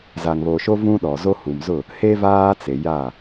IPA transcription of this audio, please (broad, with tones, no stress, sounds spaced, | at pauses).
z a˨ ŋ β o˨ ʃ o˦ v ũ˦ ɗ ɔ˨ z o˦ h u˨ m z ʊ˦˨ | h e˦ v aː˦ t͡s e˨ j a˦˨